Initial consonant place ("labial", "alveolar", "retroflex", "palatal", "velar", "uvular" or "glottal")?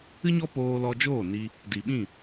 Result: palatal